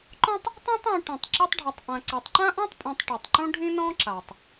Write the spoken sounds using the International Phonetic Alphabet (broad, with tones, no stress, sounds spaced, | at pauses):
ǃ ɔ̃˥ tˤ | tˤ ã˥ tˤ ũ˨ ʈ ĩ˩ tˤ ǁ e˥ tˤ ɖʱ o˨ tˤ ʔ ã˨ ǀ ɛ˨ tˤ ǃ ã˥ ʔ ɔ̃˥ tˤ pʼ ũ˨ tˤ ʈ i˩ tˤ ǃ ũ˦ ɖʱ ĩ˦ n ɔ̃˦ ǁ a˩ tˤ